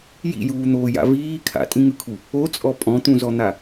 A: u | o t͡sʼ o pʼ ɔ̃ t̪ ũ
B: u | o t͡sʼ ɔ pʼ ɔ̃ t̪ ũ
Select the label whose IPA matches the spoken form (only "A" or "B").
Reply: B